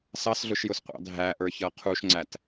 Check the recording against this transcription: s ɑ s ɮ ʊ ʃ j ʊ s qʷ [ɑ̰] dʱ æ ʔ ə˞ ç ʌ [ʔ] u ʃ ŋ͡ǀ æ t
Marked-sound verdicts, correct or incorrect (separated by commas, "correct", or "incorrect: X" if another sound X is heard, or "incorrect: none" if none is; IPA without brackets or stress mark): correct, incorrect: qʰ